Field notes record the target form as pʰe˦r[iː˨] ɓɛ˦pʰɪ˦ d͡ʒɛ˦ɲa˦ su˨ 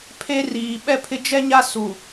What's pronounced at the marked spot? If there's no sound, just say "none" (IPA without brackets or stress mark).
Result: iː˨